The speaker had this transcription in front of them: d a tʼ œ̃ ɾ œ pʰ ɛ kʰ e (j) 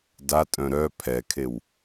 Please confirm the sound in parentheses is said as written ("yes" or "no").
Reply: no